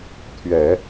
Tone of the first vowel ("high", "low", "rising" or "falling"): low